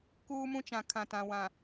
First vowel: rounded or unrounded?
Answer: rounded